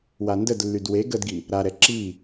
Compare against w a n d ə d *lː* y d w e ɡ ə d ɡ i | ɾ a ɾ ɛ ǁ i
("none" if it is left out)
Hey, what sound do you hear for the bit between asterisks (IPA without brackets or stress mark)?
lː